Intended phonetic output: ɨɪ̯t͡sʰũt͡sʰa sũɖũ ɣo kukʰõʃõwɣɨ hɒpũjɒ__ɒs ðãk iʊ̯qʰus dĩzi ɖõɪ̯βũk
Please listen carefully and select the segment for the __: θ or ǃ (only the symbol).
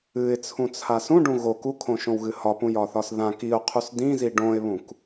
θ